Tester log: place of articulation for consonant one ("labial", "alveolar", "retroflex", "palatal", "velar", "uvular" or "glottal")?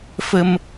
labial